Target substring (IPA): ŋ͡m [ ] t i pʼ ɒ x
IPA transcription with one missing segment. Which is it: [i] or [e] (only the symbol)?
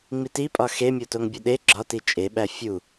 i